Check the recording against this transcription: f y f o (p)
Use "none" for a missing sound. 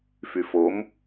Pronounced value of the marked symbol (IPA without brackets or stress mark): m